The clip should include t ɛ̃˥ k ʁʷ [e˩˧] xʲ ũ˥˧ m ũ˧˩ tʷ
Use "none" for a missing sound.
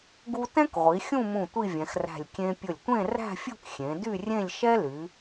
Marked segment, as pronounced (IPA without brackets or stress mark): i˩˧